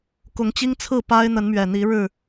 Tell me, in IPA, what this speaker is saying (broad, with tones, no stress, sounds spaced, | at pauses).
k ʊ˨˦ ŋ t͡ɕ i˦ ŋ t͡sʰ ɹ̩˥˨ p a˦ ɪ̯ n̪ ə˨˦ n m ɥ ɛ˨˩ n̪ i˨˦ ɻ ɻ̩˥˨